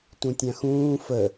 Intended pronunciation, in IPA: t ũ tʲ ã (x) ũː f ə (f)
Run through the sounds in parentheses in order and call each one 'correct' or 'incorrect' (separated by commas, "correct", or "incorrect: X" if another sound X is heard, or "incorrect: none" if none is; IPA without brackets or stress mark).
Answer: correct, incorrect: none